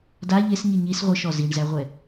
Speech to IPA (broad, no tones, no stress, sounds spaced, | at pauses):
d a ʎ e s ɲ i ɲ i s ʁʷ ɨ ʃ ɔ z i ɳ z æ ʁʷ ɛ